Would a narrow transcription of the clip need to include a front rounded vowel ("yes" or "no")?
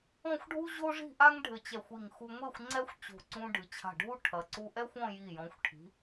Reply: no